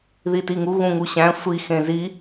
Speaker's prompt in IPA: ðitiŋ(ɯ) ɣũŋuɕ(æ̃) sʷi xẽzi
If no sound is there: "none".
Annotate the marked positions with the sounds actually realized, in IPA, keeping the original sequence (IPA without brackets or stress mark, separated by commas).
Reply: u, æ̃